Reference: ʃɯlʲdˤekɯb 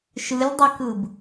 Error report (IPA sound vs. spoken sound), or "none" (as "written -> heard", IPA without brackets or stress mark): none